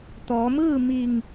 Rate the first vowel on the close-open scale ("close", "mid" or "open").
mid